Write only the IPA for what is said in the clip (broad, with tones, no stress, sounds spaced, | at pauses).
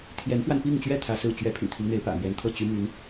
t̪ʰ j ɛ˧˥ n f w a˧ n p i˥˧ ŋ t͡ɕ ɥ ɛ˥˩ t̪ʰ ä˥ s ɹ̩˥˩ t͡ɕ ɥ ɛ˧˥ pʰ y̰˨˩ t̪ʰ i˦ ŋ n̪ e˧˥ ɪ̯ p ä̰˨˩ m ɥ ɛ˧˥ n t̪ʰ ɤ˥˩ t͡ɕ y˥ m y˧˥ n